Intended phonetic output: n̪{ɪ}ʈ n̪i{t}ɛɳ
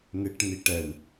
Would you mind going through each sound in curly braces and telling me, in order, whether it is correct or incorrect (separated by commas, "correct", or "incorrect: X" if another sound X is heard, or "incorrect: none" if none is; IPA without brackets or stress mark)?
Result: correct, incorrect: ʈ